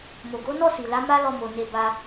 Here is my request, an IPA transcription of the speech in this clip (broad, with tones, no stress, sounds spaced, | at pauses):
m o˨ ɡ o˨˦ n ɔ˦˨ s i˨ l a˨˦ m a˦ l ɔ˧ m o˨ n e˧ b a˧